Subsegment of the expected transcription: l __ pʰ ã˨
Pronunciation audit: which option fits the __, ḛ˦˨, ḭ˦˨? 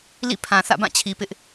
ḭ˦˨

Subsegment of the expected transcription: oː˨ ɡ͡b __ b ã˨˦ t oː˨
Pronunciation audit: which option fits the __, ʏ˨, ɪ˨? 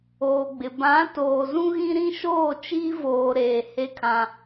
ɪ˨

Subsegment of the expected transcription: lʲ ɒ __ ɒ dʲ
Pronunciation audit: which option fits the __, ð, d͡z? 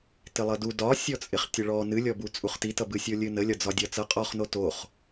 d͡z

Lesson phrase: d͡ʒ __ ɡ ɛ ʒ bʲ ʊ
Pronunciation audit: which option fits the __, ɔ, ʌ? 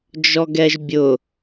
ɔ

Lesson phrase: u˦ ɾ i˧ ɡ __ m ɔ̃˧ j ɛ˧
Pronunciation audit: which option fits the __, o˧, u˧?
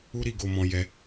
o˧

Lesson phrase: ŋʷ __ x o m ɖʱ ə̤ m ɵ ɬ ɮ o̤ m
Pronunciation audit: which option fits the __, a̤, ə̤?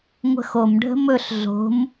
ə̤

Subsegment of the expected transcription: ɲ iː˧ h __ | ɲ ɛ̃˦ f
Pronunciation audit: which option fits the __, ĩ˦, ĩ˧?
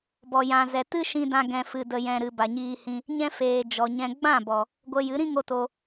ĩ˧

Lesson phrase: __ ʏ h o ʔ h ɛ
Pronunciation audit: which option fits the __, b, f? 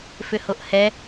f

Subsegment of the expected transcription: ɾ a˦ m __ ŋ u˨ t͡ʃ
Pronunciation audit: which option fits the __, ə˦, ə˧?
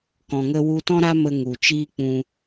ə˧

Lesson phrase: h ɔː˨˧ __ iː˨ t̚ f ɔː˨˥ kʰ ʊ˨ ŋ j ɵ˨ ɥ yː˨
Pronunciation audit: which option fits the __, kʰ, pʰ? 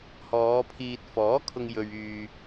pʰ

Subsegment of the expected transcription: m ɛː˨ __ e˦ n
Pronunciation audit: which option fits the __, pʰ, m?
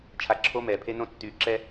pʰ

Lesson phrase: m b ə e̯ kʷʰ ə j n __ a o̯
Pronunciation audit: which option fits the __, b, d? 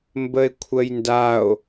d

